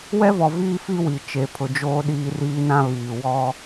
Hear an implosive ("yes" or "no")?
yes